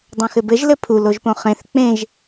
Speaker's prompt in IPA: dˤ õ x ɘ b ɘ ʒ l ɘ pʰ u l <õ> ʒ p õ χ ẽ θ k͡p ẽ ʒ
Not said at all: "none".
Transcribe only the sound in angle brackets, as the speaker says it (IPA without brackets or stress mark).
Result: o